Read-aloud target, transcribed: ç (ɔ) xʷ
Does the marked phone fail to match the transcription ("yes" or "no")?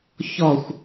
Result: no